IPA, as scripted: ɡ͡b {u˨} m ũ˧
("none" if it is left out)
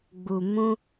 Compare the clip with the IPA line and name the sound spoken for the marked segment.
u˨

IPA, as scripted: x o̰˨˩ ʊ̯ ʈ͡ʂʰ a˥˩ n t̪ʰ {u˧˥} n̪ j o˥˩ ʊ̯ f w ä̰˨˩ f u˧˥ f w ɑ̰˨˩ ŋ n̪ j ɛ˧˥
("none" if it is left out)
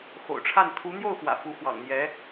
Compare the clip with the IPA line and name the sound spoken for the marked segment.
u˧˥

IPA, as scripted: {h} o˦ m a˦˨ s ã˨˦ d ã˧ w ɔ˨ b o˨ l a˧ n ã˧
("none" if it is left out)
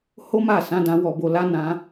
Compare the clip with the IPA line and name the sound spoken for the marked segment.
h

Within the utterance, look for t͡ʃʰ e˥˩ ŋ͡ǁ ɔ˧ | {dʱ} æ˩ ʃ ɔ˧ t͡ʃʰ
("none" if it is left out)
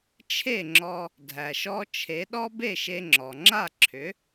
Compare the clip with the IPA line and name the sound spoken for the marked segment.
dʱ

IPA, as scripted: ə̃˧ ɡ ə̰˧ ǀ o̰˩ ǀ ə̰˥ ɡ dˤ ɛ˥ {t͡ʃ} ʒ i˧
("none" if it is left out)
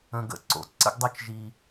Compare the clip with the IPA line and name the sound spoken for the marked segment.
t͡ʃ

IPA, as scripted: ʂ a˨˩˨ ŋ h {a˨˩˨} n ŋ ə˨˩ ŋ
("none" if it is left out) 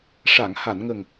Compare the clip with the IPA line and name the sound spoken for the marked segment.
a˨˩˨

